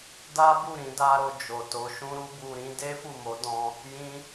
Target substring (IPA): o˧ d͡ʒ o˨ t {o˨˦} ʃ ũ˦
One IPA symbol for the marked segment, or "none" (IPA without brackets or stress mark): o˨˦